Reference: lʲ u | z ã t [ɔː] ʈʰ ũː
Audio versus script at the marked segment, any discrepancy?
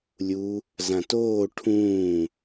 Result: yes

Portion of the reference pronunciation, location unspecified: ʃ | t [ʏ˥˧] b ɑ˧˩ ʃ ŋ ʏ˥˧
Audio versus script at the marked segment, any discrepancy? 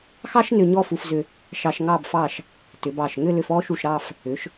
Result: yes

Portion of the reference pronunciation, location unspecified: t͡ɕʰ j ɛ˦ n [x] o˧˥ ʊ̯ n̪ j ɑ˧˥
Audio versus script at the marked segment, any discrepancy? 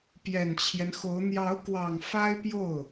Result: no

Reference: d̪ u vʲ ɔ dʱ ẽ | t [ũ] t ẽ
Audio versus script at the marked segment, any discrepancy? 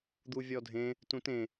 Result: no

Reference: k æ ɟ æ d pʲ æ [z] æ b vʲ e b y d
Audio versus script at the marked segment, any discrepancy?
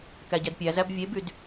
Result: no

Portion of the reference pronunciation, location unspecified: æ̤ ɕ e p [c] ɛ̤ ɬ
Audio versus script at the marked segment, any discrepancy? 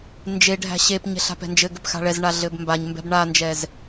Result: yes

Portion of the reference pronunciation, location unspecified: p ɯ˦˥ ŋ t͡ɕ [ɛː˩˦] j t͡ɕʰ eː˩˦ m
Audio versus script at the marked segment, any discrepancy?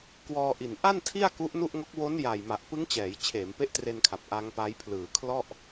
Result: no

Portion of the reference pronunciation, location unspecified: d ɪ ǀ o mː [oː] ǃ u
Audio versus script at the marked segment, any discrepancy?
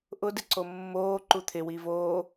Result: no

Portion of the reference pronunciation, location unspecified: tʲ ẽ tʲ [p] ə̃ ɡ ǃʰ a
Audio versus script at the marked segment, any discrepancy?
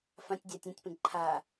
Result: no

